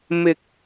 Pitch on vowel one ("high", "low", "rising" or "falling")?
low